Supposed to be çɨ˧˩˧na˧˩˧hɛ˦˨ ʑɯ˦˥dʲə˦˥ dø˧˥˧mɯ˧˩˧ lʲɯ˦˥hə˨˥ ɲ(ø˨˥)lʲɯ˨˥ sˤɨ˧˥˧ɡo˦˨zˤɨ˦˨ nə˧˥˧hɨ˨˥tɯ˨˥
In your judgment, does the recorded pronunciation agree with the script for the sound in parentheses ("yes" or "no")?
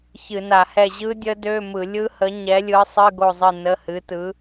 no